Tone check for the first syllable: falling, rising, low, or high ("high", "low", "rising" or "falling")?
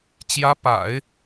rising